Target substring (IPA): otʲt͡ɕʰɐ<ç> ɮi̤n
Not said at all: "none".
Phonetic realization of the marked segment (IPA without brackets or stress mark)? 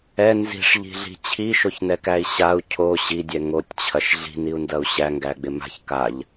ʃ